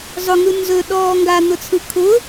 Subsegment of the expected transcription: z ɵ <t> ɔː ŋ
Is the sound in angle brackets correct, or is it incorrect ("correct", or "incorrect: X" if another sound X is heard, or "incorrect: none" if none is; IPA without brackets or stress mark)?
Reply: incorrect: ɗ